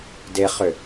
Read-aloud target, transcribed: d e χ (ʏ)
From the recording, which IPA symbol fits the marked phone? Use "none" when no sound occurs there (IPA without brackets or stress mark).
ʏ